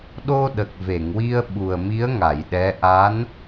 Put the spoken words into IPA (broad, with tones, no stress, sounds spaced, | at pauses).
ɗ o˧ ɗ ə˨˩ k̚ v e˨˩˨ ŋ w i˧ ə̯ ɓ u˨˩ ə̯ m i˧˥ ə̯ ŋ a˨˩˨ j ɗ ɛ˧˥ ʔ a˧˥ n